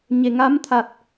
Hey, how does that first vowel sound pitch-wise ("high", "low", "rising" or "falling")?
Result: low